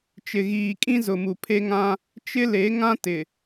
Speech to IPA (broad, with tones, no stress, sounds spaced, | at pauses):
t͡ʃ ɪ˨ ɣ iː˨ kʼ ĩ˦ z ʊ˨ m u˨ pʰ e˦ ŋ ã˦ | t͡ʃ ɪ˦ l e˨˦ ŋ ã˦ t ɪ˨